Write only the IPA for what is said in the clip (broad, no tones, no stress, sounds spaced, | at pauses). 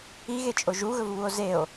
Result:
i ɣ e t͡ʃʼ o ʒ u ɣ ɵ v β u o̯ z e o̯